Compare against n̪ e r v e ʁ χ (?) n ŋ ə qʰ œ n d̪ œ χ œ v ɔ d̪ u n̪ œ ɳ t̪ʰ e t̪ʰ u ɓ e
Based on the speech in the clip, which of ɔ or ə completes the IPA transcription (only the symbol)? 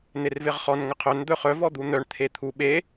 ɔ